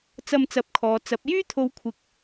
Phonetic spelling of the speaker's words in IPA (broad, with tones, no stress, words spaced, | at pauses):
t͡sɐ˧mt͡sɐ˨˥p̚kʰɔː˨ t͡sɐ˨˥p̚ jyː˥t̪ʰo˨˧wkʷʰɪ˨k̚